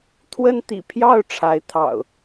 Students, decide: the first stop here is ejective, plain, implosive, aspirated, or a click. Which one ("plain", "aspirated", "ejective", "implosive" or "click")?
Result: aspirated